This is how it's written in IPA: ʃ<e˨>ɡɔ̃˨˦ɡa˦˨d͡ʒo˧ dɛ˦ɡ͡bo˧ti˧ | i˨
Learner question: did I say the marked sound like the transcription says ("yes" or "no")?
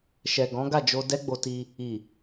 no